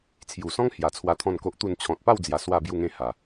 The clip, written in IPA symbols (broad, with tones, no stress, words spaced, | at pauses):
t͡sʰju˨˩sɔ̃˦ŋ hja˨˩t͡sʰwa˧ t̪ʰɔ̃˥˧nko˦ʔt̪u˥˧n t͡ɕʰɔ̃˨t̚pa˥˧w d͡zja˧swa˥˧bju˥˧ŋẽ˥˧ ha˨˩